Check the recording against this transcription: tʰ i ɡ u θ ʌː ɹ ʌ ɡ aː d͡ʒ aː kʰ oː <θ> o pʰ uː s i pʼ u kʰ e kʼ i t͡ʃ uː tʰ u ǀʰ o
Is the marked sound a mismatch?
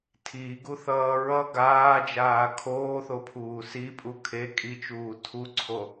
no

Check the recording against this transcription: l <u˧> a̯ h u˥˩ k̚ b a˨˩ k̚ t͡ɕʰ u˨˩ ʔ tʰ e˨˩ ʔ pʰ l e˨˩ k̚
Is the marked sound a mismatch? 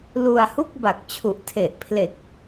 no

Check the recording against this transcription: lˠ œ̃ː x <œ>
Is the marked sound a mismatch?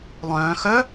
no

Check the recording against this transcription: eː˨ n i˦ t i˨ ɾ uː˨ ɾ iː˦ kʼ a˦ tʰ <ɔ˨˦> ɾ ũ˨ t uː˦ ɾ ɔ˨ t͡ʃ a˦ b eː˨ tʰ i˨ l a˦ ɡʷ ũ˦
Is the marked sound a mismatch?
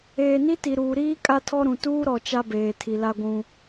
yes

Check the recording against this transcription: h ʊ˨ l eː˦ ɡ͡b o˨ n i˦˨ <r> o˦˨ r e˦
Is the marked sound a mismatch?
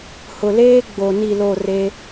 yes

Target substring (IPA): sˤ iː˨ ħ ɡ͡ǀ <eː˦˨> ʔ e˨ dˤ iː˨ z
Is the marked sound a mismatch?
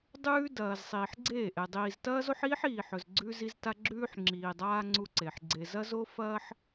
no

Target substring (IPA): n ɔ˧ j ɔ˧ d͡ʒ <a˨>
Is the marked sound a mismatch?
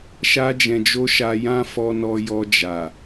no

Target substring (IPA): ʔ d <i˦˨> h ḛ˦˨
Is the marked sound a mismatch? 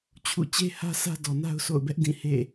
yes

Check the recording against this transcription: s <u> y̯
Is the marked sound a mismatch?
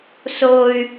yes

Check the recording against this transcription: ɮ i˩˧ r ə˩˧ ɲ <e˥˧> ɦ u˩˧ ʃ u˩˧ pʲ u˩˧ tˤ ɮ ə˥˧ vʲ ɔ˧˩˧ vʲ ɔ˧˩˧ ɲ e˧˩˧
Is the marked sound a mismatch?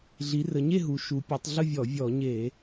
no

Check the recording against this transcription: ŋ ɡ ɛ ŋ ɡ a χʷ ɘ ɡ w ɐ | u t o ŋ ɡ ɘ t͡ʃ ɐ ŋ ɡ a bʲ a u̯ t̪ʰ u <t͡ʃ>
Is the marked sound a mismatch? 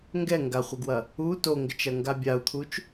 no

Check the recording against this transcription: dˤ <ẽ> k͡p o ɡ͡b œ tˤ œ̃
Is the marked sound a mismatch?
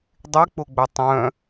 yes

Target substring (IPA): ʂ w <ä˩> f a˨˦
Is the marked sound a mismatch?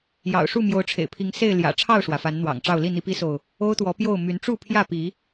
no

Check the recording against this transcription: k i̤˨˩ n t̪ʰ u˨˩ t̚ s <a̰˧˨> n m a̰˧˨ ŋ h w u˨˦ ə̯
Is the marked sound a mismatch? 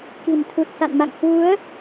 no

